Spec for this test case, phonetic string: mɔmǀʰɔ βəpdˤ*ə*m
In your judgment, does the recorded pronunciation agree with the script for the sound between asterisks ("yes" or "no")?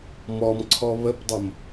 no